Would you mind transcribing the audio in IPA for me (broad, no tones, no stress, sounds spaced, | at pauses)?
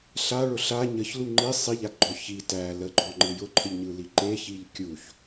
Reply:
ɬ a ɭ ʊ ɬ a ɲ ə ç l u ŋ͡ǃ i sˤ i ʎ a ɡ ɡ͡ǃ ɔ ç i t æ l ə ɡ͡ǃ ɔ ŋ͡ǃ ɯ j ʊ ǃʰ ə ʎ ɲ ɯ l i ǃ e ç i ʎ kʲ u ç